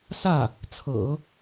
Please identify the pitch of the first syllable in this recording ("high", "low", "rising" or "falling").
falling